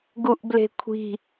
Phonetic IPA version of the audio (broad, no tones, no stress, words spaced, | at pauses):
ɡuʔble̤kʷʰi̤